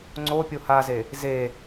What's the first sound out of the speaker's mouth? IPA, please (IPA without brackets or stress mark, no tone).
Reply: ŋ͡ǀ